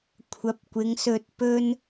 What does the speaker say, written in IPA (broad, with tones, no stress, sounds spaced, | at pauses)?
kʷʰ ɐ˨˥ p̚ kʷ ɪ˨˧ ŋ s ɵ˧ t̚ p ɵ˥ n